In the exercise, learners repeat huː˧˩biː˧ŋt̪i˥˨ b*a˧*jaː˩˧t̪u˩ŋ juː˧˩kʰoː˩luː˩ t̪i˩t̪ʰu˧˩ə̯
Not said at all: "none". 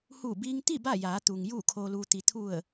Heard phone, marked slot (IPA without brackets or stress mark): a˥˨